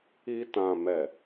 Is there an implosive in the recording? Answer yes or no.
no